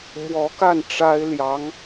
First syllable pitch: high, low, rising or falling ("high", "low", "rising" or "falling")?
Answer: rising